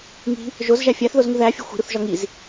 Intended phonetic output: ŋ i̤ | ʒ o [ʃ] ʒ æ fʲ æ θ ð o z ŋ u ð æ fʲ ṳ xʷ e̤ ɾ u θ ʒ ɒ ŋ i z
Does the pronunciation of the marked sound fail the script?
yes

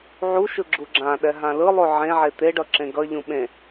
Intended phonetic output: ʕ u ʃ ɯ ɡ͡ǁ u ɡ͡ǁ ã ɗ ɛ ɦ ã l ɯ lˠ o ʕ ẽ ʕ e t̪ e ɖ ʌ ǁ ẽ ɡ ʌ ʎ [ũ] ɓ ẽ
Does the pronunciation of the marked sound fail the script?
no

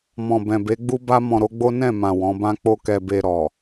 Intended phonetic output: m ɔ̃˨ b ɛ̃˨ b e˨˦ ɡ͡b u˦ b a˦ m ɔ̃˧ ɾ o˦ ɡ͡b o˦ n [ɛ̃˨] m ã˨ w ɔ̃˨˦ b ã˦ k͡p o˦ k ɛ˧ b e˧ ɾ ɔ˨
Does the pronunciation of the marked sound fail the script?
yes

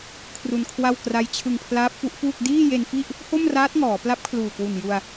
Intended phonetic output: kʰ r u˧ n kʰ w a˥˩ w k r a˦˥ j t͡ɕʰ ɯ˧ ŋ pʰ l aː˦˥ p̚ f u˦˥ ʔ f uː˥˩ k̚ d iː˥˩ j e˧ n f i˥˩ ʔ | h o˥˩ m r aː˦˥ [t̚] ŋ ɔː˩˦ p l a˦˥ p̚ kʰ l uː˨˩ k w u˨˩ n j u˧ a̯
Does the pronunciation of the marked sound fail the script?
no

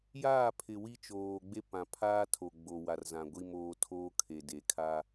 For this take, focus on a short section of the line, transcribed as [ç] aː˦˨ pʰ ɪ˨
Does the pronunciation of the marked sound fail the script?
yes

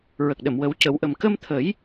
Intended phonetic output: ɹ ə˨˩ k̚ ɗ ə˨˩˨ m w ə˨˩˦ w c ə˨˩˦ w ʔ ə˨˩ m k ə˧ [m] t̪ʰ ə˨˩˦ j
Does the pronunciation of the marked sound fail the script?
no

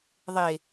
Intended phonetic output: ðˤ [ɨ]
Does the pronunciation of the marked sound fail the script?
yes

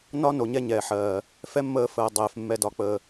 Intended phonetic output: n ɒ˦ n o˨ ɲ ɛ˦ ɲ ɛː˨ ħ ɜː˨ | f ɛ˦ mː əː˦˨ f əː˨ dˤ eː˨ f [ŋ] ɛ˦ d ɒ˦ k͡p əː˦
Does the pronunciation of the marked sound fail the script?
yes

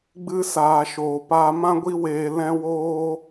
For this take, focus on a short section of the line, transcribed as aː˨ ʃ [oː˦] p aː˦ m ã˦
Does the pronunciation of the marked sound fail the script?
yes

